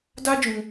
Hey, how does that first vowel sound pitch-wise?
high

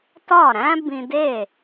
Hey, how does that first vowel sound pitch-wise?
falling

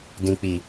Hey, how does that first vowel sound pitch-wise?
low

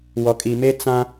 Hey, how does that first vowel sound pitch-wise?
low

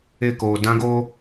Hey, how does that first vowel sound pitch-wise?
falling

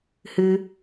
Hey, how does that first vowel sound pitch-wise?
high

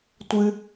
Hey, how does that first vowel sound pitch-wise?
low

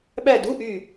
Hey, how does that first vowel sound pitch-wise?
falling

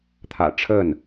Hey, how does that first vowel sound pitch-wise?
low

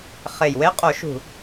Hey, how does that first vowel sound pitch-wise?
low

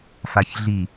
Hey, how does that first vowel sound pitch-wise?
low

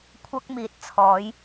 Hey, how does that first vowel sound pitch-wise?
high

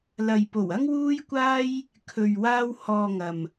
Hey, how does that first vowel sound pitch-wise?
low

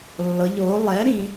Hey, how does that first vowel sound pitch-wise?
rising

